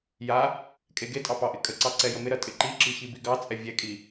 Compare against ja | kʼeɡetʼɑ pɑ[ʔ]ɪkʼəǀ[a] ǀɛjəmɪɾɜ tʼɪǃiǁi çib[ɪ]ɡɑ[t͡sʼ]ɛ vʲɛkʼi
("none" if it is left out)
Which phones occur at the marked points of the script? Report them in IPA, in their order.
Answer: ʔ, ɑ, i, t͡sʼ

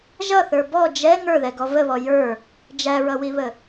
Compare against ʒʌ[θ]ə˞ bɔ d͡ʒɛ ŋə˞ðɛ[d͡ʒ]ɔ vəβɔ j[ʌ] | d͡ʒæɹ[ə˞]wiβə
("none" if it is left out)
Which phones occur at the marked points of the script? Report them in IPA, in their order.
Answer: θ, ɡ, ə˞, ʌ

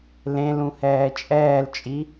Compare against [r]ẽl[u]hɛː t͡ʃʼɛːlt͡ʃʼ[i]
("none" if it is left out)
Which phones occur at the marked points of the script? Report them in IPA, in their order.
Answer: l, ũ, i

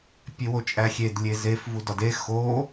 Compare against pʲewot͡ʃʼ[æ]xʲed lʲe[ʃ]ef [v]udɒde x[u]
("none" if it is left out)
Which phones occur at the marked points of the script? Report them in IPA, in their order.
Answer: æ, z, v, o

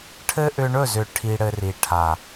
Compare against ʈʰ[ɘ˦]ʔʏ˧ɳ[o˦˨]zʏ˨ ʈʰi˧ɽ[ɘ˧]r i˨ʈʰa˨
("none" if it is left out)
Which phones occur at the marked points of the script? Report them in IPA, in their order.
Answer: ɘ˦, ɵ˦˨, ɘ˧

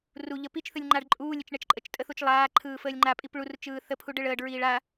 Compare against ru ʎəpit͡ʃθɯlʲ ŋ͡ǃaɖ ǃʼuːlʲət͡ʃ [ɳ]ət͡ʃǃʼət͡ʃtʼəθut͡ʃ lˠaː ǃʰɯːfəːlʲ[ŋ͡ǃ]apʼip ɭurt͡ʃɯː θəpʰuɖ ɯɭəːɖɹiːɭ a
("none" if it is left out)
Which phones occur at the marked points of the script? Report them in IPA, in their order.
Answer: ɳ, ŋ͡ǃ

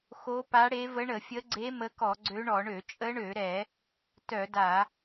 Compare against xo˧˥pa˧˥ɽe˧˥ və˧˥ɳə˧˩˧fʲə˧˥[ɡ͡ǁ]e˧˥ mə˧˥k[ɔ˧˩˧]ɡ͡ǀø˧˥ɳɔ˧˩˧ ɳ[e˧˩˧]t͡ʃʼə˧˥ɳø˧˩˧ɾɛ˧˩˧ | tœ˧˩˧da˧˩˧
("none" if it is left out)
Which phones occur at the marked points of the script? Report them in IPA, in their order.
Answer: ɡ͡ǀ, ɔ˧˩˧, ø˧˩˧

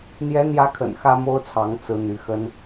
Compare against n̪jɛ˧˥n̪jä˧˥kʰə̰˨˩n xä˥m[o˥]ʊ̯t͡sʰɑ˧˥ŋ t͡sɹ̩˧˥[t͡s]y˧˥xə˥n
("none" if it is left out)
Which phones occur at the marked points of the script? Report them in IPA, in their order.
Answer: o˥, n̪

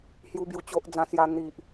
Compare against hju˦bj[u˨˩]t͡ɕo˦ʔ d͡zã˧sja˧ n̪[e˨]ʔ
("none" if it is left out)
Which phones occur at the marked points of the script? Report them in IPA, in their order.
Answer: u˧, i˨

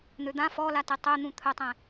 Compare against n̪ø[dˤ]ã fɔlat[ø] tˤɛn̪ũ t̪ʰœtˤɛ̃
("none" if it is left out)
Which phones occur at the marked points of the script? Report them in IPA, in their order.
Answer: d̪, ɛ

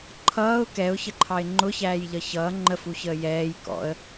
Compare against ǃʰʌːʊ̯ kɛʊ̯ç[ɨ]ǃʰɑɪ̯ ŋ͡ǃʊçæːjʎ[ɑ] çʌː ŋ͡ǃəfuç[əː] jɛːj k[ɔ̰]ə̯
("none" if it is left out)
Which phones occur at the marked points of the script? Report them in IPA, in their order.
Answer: ə, ʌ, əː, ɔ̰

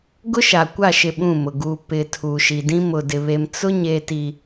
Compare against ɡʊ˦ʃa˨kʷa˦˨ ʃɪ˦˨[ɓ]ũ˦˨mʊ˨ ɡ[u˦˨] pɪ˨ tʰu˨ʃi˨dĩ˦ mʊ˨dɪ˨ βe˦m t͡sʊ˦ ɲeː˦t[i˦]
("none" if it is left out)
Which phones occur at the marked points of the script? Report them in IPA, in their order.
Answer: ɓ, u˨, i˦

